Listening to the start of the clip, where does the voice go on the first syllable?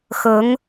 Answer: rising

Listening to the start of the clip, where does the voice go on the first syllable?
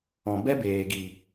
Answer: low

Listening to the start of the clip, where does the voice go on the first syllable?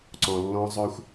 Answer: low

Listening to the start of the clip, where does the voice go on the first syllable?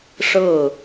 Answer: falling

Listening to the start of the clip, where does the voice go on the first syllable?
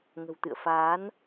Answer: low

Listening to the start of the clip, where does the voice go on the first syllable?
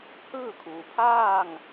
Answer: falling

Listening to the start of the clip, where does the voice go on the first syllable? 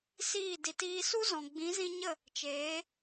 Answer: falling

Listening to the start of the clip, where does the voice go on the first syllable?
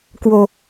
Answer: low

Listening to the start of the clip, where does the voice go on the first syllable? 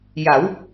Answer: rising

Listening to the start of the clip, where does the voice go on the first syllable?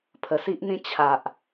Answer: low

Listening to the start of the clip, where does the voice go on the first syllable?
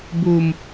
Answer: low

